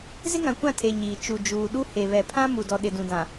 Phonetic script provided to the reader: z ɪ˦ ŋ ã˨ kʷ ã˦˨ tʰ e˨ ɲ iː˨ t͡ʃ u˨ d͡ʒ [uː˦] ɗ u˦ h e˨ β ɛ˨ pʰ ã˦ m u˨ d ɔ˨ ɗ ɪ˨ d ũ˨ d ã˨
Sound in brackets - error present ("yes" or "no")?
yes